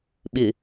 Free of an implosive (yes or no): no